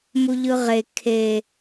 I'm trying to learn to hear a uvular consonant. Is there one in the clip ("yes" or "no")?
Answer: yes